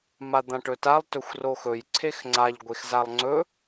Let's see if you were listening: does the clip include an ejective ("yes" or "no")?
no